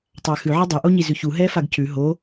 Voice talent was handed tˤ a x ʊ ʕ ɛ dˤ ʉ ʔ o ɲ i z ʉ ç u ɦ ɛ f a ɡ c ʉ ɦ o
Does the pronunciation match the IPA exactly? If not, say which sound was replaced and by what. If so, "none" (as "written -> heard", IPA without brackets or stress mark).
ʊ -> ʉ